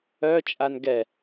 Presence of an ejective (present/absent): present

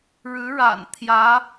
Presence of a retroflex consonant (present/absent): present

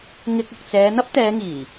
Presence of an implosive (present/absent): absent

